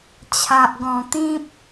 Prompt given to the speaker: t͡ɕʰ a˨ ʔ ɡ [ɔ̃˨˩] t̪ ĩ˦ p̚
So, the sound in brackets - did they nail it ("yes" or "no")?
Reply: yes